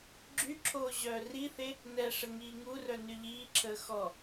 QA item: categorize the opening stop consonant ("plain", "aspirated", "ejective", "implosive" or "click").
click